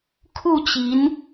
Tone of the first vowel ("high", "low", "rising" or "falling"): falling